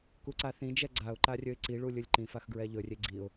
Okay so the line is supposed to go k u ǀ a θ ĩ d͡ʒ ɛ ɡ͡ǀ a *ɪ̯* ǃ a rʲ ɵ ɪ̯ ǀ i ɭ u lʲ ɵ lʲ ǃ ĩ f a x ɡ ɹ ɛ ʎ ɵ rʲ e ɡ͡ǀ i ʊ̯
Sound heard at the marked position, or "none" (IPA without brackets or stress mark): ʊ̯